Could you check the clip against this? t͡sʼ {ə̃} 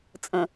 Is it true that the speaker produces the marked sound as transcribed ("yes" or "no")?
yes